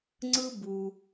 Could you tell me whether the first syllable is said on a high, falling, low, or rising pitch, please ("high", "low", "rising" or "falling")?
high